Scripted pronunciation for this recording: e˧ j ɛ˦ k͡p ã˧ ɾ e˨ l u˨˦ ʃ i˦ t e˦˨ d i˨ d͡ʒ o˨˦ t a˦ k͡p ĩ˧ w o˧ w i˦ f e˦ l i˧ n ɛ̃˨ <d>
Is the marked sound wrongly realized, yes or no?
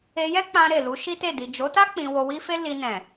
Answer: yes